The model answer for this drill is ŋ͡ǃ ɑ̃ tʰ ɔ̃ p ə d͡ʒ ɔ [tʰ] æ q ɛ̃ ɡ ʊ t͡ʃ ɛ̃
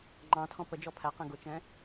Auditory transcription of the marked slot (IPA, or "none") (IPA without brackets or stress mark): pʰ